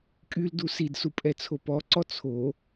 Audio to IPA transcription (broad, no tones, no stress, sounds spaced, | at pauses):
kʼ y l d u s i d s u pʼ ɛ t͡sʰ o p ɔ ǀ ɔ t͡sʰ o